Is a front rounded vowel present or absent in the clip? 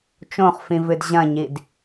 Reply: absent